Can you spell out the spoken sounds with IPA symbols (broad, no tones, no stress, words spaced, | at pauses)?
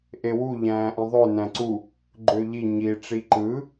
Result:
ʔewu ʎæ̃ːʔĩðˤø næ̃ǀu | ɡ͡ǃøʎi ɲi ʈ͡ʂiǃɯ